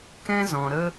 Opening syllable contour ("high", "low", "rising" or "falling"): high